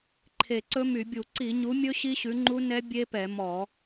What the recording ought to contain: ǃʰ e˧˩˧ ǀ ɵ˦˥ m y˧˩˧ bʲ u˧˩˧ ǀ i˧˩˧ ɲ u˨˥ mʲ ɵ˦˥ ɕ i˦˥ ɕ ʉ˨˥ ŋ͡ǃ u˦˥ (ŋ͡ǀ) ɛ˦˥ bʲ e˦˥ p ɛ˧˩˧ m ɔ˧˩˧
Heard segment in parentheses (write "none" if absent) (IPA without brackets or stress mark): n